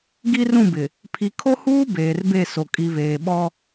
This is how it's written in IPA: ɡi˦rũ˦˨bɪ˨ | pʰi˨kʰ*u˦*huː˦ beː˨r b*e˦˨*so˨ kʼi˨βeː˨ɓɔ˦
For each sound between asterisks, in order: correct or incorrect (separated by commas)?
incorrect, correct